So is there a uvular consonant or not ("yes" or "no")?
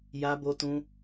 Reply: no